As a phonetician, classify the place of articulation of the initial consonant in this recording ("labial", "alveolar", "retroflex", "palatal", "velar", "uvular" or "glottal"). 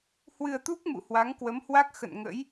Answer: glottal